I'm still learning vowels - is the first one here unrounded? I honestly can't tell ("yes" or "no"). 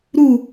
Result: no